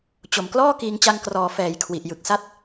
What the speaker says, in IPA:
t͡ɕo˨˩mklɔː˥˩ kiː˧ŋt͡ɕa˧ŋkrɔː˩˦ fɛː˩˦jkʰwi˨˩ʔ jɯ˨˩k̚sa˦˥t̚

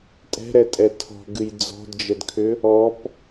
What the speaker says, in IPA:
tʼɛ̤ɾɛtʼɛ tʰɔ̤ɡɨj d͡zɔ̤dd͡ʒədkʰʏ | ɔp

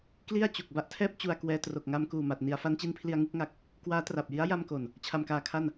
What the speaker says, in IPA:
kli˥˩a̯t͡ɕu˨˩k̚ ba˥˩ʔtʰɛː˥˩p̚ t͡ɕu˧a̯kwɛː˧ tro˨˩k̚ŋa˧mkuː˨˩ma˨˩t̚ ni˩˦a̯fa˦˥nt͡ɕi˦˥npʰli˧a̯ ŋɯ˥˩k̚ŋa˦˥k̚ | kwaː˦˥tra˨˩p̚ji˦˥a̯ ja˧mko˨˩n | t͡ɕʰa˧mkaː˧kʰa˥˩n

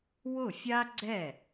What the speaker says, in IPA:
wʊ˥˩fʲa˥ɡ͡ǀɛ˥˩

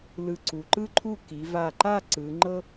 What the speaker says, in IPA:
lɯ˧˩ǀu˩˧ǃɯ˥ǃʰu˥˧ ki˩˧va˧˩ǃa˥˧ ǀɯ˩˧ ŋ͡ǃɤ˥

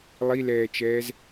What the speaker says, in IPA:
lˠilɛːt͡ʃɛːz

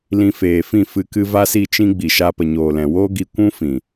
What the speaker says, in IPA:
lĩ˧feː˨fĩ˦˨ fɨ˧kɨ˧ va˦si˦˨t͡ʃĩ˦ɡ͡bi˨ ʃa˧pə˨ ɲoː˨lɛ̃˨woː˦ ɡi˧kʷũ˦fĩ˨

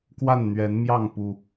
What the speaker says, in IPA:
kwa˥˨nn̪ɥɛ˨˦nmjɑ˥˨ŋ pu˨˩

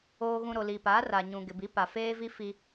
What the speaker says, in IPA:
oː˨ɣũ˨ ɾo˨li˨pa˨˦ ra˨ ɲũ˨ɡɪ˨bi˨˦pa˨ feː˦vi˦ fiː˦

